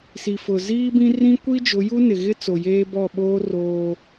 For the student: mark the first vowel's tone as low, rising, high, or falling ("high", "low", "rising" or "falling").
low